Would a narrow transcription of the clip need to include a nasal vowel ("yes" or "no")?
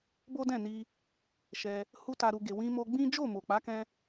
yes